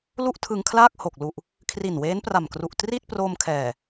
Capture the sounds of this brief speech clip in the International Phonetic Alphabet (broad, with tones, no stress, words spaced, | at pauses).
lu˥˩ʔtʰɯ˧ŋkʰlaː˥˩k̚ ho˨˩k̚lu˨˩ʔ | kʰri˨˩nweː˦˥n pra˨˩mkru˨˩ʔ tri˥˩t̚ pro˧m kʰɛː˨˩